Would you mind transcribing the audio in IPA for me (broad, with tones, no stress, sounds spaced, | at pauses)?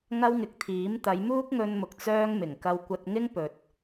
ŋ ɐ˥ w ŋ ɪ˨˥ k̚ t̪ʰ iː˨˥ m t̪ ɐ˨˧ j m uː˥ k̚ ŋ ɵ˧ n m ʊ˨ k̚ t͡s œː˥ ŋ m ɪ˨˩ ŋ k ɐ˧ w kʷ ɐ˧ t̚ ŋ ɪ˥ ŋ p ɵ˨ t̚